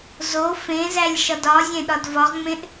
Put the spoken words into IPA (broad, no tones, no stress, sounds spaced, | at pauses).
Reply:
z o f ẽ z æ lʲ ʃ ɒ d ɒ zʲ ẽ ɗ ɒ d v ɒ ʁ ŋ͡m ẽ ʔ